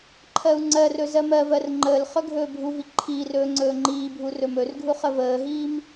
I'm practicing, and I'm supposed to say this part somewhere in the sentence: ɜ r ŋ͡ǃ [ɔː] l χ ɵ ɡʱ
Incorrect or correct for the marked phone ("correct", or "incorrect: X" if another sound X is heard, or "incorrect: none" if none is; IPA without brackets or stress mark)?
incorrect: əː